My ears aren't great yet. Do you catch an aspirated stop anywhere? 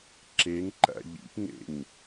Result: no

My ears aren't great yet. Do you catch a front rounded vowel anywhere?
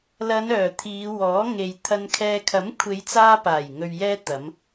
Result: yes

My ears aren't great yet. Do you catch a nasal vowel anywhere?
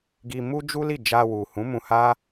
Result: yes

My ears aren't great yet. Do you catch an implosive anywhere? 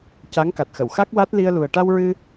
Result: no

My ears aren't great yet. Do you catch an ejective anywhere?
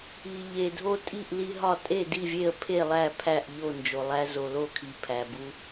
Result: yes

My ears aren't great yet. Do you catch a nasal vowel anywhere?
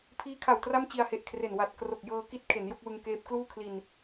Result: no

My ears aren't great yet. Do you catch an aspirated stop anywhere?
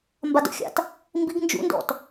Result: no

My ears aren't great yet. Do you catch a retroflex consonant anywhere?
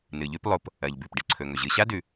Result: yes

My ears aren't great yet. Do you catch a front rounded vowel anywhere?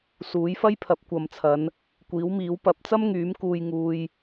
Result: yes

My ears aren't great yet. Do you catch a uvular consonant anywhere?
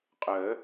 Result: yes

